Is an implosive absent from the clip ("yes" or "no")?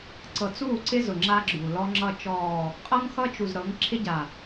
yes